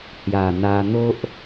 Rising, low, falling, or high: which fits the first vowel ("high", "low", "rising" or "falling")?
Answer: low